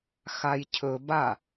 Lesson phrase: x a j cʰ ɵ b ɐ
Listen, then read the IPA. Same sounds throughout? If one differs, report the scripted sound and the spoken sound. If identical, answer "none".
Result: ɐ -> a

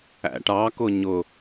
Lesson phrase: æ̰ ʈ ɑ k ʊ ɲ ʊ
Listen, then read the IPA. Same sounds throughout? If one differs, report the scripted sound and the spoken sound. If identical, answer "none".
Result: none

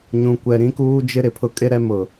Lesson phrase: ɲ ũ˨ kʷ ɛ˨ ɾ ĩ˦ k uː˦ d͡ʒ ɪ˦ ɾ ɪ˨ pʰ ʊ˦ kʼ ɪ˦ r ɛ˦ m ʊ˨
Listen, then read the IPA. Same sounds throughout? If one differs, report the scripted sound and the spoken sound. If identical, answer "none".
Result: r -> ɾ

